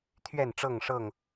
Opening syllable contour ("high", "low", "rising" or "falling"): falling